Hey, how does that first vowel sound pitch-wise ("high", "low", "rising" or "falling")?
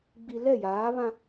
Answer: low